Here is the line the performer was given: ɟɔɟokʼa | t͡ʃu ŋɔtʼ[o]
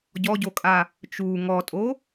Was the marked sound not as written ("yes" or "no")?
no